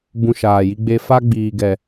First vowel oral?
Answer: no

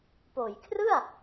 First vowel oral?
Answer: yes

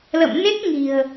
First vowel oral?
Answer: yes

